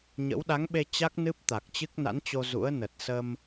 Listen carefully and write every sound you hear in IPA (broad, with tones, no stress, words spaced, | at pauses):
ɲə̰˧˥w ɗa˨˦ŋɓe˧ t͡ɕa˦˥k̚nɨ˦˥p̚t̪a˨˩k̚t͡ɕɨ˦˥k̚ na̰˧˥nt͡ɕo˧ zṵ˧˥ə̯nə˨˩t̚ sə˧m